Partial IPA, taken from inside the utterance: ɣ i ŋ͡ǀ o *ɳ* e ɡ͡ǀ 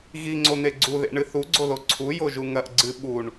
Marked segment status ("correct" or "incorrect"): incorrect